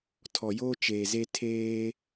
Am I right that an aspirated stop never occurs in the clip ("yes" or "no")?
no